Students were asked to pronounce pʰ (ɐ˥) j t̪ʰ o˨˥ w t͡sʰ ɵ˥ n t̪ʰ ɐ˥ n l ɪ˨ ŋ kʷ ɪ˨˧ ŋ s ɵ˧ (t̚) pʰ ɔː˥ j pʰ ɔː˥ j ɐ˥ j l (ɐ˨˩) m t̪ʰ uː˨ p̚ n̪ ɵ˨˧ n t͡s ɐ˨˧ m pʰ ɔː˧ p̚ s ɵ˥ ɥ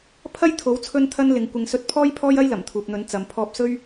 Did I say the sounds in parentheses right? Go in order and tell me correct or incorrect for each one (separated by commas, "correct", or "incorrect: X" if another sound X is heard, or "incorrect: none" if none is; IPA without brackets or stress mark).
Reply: correct, correct, correct